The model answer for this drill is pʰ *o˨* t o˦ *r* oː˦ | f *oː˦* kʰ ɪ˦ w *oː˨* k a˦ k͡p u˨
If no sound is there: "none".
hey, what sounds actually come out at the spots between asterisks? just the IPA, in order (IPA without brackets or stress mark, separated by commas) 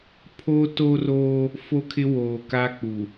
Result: o˦, r, o˦, oː˨